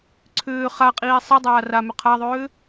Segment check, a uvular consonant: present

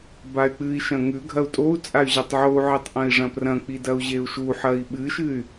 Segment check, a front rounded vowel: present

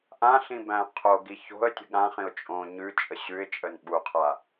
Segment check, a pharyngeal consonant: absent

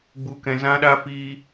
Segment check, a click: absent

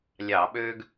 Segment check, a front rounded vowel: present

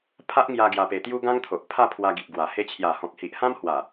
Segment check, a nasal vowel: present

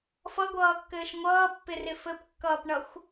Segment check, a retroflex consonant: present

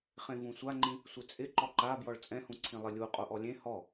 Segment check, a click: present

